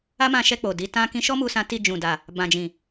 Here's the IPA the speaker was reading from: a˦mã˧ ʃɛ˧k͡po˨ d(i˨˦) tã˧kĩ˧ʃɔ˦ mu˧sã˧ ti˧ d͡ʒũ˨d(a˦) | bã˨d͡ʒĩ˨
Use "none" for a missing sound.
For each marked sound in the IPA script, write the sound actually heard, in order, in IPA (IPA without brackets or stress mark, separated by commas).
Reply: i˨˦, a˨